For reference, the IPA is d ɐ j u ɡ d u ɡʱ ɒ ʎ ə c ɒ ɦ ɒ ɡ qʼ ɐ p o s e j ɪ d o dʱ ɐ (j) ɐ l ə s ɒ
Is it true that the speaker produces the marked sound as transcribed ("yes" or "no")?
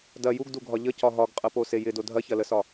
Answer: no